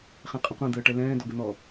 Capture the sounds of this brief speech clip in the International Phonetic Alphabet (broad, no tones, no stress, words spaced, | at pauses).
χɛ̃qʼə̃qʷɛ̃ d̪əːʈɛlɛ̃ː dɔɡən̪ɔ